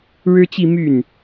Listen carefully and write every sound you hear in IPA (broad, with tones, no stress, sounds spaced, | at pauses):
ɻ ɻ̩˥ t͡ɕ i˥˧ m y˥˩ n